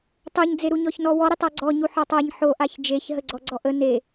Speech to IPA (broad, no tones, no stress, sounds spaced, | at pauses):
tˤ o ɲ d͡z e ɾ u ɲ ɔ ç n ɔ w ɔ ɾ e tˤ a ɡ͡ǀ ɔ ɲ u ħ ɔ tˤ a ɲ ħ o ʔ a ç d͡ʒ e ç ɦ ə ɡ͡ǀ ɔ ɡ͡ǀ ɔ ʔ ə n e